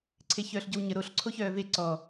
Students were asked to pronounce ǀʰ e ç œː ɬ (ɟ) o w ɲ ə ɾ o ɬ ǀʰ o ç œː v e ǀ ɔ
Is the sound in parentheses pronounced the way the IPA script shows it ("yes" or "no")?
yes